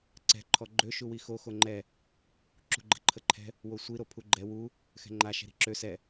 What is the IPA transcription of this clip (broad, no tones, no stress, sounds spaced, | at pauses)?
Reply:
ǀ ɛ̤ ǃʰ ɔ ɡ͡ǃ ø ʃ u w i x o x o ŋ͡ǃ ɛ | ǁ ṳ ɡ͡ǃ ə̤ ǃʰ ə ǃʰ ɛ̤ | w o sʷ i ɾ o pʰ u ɡ͡ǃ ɛ w u | x ɛ̤ ŋ͡ǃ a ʃ ɛ̤ ɾ i̤ ǁ ø s ɛ